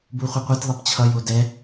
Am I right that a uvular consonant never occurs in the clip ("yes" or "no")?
no